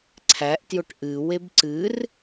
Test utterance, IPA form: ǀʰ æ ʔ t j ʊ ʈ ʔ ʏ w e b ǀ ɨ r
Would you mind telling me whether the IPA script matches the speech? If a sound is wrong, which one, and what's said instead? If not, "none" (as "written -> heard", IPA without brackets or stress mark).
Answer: ʏ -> ɨ